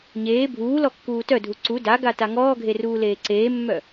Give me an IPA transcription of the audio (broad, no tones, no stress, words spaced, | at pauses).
ɲeː bʱuːlɔ kːuːtœdʱu ǀu daɡa taŋɔːɡʱe ruːleːǀeːmːœ